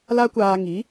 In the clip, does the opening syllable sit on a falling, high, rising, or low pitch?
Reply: high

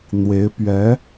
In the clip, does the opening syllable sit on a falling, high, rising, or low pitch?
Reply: rising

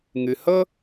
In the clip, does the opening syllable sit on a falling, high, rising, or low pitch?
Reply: low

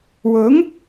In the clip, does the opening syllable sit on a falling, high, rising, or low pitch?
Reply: rising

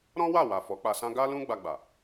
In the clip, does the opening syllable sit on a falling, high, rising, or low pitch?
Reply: high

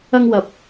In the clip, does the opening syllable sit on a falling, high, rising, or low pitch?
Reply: high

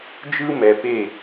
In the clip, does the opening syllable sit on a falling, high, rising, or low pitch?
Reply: high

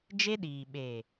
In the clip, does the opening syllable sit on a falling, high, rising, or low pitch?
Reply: high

